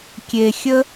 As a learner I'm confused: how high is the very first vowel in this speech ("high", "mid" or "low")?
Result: mid